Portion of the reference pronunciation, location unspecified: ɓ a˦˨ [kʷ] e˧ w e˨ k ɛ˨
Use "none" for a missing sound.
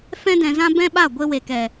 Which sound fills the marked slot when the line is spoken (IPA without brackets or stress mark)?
ɡʷ